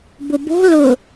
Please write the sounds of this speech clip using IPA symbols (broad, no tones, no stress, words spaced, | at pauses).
bʊbo̤ lʊ